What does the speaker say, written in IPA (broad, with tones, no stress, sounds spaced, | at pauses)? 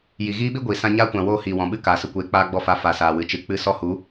j i˨ ɣ iː˦ ɓ i˦ ɡʷ iː˨ s ã˧ ɲ aː˦ kʷ ã˨ w oː˧ h iː˨ w ɔ̃˨ ɓ ɨ˦ k aː˨ s ə˧ kʷ eː˨˦ k͡p aː˧ ɡ͡b ɔ˧ f a˨˦ f a˨ s aː˨ w ɨ˨ t͡ʃ ɨ˨ k͡p ɨ˧ s ɔ˧ h u˨˦